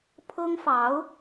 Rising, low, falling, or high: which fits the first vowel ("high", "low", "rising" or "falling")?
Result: high